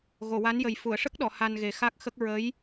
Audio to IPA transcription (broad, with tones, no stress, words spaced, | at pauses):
ɣo˨˩˨wa˧˥njə˨˩j fu˨˩˨ə̯ʂə˦˥k̚ɗɔ˨˩˨ ha˧nɣe˨˩xa˦˥k̚xə˦˥k̚ ɹə˧˥j